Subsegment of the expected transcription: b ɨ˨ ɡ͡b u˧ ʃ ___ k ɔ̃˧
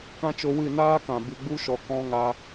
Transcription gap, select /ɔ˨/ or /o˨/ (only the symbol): ɔ˨